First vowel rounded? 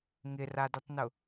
no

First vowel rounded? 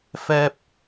no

